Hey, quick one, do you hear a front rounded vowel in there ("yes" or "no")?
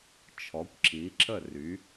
yes